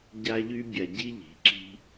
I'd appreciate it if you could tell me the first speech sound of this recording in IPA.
ɟ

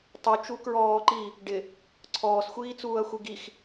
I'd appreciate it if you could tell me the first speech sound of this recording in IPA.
tˤ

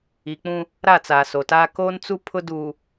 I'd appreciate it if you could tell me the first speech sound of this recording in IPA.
i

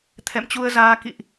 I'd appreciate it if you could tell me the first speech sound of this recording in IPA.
t̪ʰ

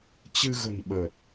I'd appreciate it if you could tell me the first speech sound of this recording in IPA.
t͡ɕ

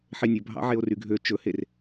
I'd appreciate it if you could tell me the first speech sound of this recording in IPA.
ħ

